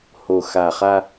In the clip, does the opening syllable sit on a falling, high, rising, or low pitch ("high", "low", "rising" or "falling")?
low